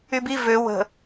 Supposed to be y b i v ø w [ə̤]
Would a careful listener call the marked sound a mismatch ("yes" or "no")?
no